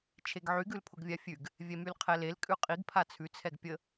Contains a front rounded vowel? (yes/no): yes